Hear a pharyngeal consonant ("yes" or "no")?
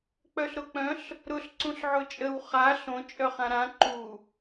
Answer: yes